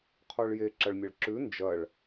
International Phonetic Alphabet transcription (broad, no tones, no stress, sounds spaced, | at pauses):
qʰ o ɭ j e ǁ ɐ ɭ mʲ ɐ ɭ ǁ ʉ n d͡ʒ ɐ ɭ